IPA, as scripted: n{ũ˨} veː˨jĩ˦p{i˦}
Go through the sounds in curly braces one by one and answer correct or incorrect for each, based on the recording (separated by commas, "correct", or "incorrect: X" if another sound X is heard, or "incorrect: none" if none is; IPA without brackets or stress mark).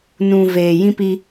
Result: correct, correct